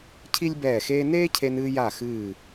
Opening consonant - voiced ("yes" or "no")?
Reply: no